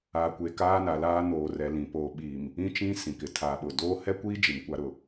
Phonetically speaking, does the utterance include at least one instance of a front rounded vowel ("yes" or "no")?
no